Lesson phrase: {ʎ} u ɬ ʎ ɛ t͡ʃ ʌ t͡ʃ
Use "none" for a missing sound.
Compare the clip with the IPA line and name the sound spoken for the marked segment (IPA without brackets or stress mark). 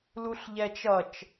l